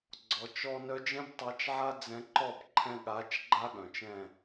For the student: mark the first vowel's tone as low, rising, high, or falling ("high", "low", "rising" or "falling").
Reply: rising